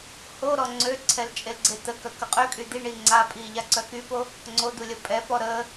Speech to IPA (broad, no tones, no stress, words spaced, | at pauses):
ho ɾɔŋ͡ǀøǀʰɛl t͡ʃʼelɡ͡ǀet̪əkœ kəqʼøkʼy d̪iɳi ŋ͡ǀapʼi ʎaǀœkypo | ŋ͡ǀod̪u lʲəpʼɛpɔ ɾə